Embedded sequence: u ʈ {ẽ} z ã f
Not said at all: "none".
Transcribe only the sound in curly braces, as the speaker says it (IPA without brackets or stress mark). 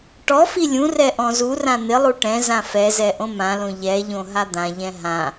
ɛ̃